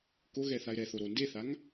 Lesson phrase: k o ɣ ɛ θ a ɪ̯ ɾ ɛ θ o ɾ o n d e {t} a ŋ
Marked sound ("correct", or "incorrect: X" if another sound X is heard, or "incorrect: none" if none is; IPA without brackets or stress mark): incorrect: θ